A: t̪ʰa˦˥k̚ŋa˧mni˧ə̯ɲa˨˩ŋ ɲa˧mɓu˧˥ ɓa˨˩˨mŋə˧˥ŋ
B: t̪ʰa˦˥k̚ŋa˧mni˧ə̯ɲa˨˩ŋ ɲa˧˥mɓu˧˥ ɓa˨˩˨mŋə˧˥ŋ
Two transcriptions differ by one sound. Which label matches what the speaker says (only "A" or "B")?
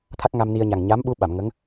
B